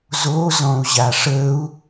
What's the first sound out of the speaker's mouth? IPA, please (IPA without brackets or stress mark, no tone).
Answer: z